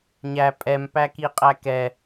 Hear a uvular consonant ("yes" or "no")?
yes